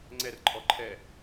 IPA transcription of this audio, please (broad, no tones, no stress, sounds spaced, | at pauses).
ŋ͡ǀ ɛ r ǃʼ ɔ ǃʰ ɛ